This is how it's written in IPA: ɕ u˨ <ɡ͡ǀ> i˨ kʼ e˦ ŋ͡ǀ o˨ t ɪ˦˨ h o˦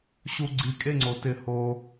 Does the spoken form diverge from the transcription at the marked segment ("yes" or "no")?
no